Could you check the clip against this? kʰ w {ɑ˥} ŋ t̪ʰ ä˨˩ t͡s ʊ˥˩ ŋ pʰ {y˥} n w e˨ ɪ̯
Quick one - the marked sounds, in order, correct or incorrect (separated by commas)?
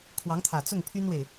incorrect, correct